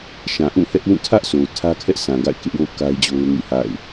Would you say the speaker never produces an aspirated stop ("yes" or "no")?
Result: no